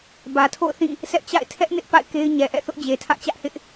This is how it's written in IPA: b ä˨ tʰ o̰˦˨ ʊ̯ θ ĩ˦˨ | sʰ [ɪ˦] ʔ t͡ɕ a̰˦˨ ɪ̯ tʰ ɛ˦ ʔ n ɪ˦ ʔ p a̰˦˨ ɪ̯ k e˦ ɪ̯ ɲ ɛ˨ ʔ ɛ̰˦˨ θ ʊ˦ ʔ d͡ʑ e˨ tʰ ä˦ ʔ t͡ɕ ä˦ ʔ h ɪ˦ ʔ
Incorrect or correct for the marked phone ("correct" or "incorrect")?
incorrect